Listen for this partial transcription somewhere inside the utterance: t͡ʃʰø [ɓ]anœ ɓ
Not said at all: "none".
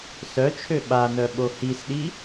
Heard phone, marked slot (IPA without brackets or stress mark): ɓ